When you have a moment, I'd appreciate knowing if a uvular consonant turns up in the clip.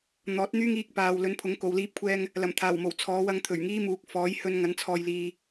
no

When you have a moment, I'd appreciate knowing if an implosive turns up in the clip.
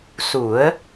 no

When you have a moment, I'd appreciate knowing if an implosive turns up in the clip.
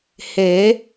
no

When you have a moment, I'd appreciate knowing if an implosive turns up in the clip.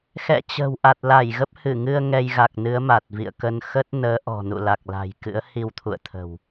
no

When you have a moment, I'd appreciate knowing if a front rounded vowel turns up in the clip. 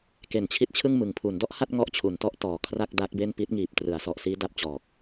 no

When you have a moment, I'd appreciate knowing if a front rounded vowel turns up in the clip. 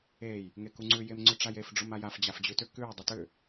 yes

